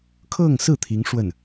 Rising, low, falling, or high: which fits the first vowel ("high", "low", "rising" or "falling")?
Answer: falling